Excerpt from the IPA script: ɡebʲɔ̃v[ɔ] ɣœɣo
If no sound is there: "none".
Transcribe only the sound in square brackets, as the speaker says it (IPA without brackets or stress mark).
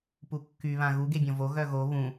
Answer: o